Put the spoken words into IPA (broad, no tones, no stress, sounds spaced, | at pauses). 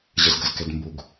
ʑ ə z ɡ ə z k ɛ d m b u ɡ